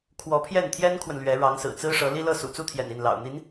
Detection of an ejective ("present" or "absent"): absent